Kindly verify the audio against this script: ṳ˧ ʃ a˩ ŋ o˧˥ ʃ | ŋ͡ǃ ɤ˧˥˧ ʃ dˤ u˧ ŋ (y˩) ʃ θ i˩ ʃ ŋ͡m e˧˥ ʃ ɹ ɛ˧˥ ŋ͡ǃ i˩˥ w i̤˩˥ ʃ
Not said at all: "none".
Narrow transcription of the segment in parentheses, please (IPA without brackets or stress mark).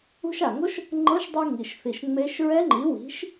i˩